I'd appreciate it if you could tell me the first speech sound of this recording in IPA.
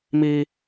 m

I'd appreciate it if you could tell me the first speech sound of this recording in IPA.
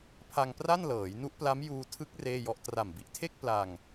pʰ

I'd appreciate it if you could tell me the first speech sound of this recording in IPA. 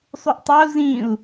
sˤ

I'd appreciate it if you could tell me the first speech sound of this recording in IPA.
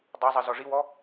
dˤ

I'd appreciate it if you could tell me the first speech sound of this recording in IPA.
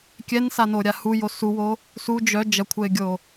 kʲ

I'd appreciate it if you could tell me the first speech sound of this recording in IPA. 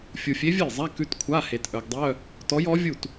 fʲ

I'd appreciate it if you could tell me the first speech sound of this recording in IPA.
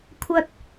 kʷʰ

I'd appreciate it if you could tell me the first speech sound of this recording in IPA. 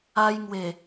a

